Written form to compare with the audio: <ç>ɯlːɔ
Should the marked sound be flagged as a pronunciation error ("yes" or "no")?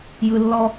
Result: yes